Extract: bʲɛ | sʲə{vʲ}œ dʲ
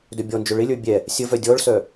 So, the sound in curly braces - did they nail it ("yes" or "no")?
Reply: no